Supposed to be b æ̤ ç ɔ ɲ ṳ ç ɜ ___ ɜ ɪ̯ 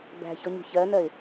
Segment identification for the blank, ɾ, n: n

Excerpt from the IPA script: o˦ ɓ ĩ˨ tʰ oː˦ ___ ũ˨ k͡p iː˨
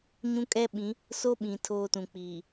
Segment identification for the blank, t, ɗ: t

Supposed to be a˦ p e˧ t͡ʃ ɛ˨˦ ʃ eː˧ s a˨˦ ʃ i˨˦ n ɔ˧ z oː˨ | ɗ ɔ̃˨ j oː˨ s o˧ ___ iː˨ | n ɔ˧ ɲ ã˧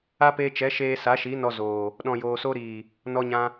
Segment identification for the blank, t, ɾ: ɾ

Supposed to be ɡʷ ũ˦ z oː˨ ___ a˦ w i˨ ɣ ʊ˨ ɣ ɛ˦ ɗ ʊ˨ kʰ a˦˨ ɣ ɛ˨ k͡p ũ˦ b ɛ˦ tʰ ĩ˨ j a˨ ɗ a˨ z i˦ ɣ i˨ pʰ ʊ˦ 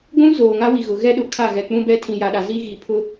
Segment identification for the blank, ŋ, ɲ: ŋ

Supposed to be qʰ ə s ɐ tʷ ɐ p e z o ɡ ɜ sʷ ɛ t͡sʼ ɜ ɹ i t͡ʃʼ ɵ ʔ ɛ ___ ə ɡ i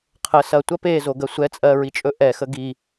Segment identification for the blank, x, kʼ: x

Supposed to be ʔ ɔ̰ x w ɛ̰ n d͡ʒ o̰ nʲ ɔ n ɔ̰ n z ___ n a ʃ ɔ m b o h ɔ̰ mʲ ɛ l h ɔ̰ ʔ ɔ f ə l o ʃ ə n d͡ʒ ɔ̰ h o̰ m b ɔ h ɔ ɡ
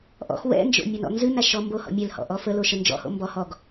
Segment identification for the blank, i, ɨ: ɨ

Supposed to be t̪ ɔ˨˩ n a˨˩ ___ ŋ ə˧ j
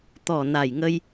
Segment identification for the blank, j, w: j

